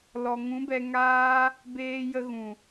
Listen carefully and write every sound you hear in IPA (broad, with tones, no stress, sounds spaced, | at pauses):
l ɔ˨ ŋ ũ˨˦ b ɛ˧ ŋ aː˦ | b eː˦ j ə˦ ɣ ũ˨